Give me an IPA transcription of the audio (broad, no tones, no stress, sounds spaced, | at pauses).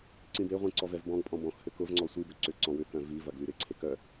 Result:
ǀ ĩ b e ʁʷ ĩ ǀ ɔ v ɛ v b ɔ̃ ɡ pʼ ɔ̃ b ɔ̃ x h ʏ k ʊ v ŋ͡ǀ ɔ sʷ i b ʏ ǀ ʏ ǀ ɔ̃ w ʏ k œ̃ v i v ɐ ɡ l y ɾ ɪ ǀʰ e k œ